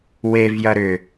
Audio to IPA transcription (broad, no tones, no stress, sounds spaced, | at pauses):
w e v j ɐ ɾ ʏ